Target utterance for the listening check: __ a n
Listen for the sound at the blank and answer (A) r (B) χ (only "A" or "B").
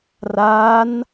A